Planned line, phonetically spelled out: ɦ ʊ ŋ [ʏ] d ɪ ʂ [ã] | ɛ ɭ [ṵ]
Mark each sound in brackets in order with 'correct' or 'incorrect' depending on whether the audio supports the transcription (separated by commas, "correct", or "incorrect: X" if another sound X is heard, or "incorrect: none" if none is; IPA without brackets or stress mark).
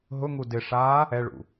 incorrect: u, incorrect: a, correct